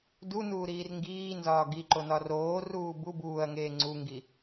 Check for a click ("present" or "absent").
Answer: present